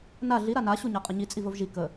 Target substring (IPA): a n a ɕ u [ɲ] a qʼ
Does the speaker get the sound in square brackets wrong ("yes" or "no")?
no